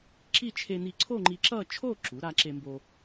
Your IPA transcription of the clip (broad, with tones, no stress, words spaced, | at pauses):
ǁi˥˧ t͡ʃʰe˧ni˧ ǀʰo˥˧ŋ͡ǃi˧ǁʌ˥˧t͡ʃʰo˥˧ ǁu˩˥ ɾa˧ǁe˧mbo˧